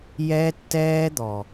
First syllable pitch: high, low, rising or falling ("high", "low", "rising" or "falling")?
high